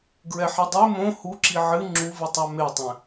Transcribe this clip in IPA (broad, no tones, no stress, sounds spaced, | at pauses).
ɡ ɹ ɛ ħ i dˤ e m õ h u ǁ i ʕ ɨ ŋ͡ǁ u v ɨ tˤ a m e tˤ ɛ̃